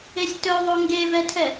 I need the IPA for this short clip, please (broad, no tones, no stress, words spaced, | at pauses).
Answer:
esʲtɵðˤo ŋɡevɛtʰɛ